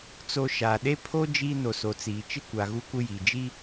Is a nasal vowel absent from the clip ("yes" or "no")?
yes